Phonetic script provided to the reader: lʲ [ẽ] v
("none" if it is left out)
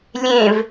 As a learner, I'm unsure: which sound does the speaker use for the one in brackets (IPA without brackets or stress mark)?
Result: ẽ